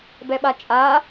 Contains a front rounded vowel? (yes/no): no